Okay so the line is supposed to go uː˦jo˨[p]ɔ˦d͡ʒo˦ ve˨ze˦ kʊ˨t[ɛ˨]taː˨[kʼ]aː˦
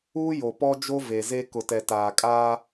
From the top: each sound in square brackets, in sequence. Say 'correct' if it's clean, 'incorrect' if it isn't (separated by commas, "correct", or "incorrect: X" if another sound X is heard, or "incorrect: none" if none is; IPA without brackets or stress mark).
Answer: correct, correct, correct